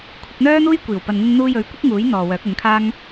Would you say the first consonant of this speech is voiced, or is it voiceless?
voiceless